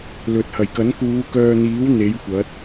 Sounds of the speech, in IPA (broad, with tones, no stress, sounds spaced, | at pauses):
l ɵ˨ t̚ h ɐ˨˩ j k ɐ˨˥ n k uː˨˧ k œː˧ n̪ iː˨˥ w n̪ e˨˥ j kʷ ɐ˨˥ t̚